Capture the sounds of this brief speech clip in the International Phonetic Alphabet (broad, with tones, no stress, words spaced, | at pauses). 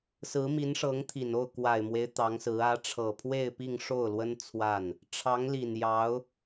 sɹ̩˧˥mi˧˥nʂɤ˧˥ŋt̪ʰi˨˩n o˥˩ʊ̯kwa˨˩ɪ̯mwe˦ɪ̯ t̪ɑ˧˥ŋsɹ̩˧˥ ä˧˥ʈ͡ʂʰɤ˨˩pʰwe˥˧ɪ̯ pi˥˧ŋʂo˥˩ʊ̯lwə˥n t͡sʰwa˥˩n | ʈ͡ʂʰɑ˧˥ŋli˨˩njɑ˧˥ʊ̯